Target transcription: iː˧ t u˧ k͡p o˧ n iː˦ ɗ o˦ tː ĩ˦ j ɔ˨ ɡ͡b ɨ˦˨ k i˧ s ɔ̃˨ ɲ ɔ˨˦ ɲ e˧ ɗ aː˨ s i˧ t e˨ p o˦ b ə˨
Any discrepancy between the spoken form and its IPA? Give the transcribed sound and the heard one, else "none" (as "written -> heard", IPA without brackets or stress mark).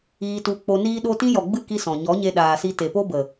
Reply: tː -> t